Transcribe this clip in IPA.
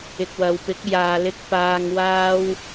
ɪ˨k̚wɐ˨wpɪ˨˥k̚ jaː˨lɪ˧k̚ paː˧ŋ waː˧w

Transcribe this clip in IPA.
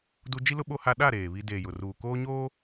du˦ d͡ʒi˦lʊ˦ ɓo˦ha˦ ɗa˦˨ ɾeː˨βi˦ deː˨jʊ˨ruː˨ koː˦ɲoː˦

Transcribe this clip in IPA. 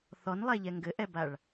θɔnlˠɛʎɛ ŋɡɘʔɛbaɭ

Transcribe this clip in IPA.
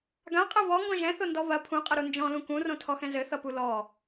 ɡãqʼɐ βɔŋɡɔ̃ ʒɛ̃θondɔ βɐ pʰũqʼʌɾu nd͡ʒɔ̃lũ kũrõtʰɔxɛ̃ zɘθʌpu lɔ

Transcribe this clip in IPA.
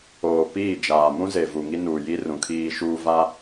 oː˨ piː˦˨d͡ʒaː˨ mũ˦ze˨ vu˨ŋi˦nuː˨ji˦ rũ˨kʰiː˦ʃuː˦ va˦

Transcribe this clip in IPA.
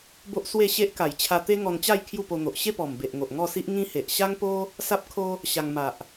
bo˦ʔswe˥˧ɕe˦ʔ ka˨˩jt͡ɕʰa˧ t̪e˦ŋɔ˧nt͡ɕa˥˧j kʰju˥˧po˧n̪o˨ʔ ɕe˥˧pɔ˨˩mbe˨ʔ ŋo˨ʔŋɔ˥˧si˦ʔ ŋĩ˦he˨ʔ ɕa˦ŋpo˦ | sa˦p̚kʰo˦ | ɕa˧ŋ ma˨ʔ

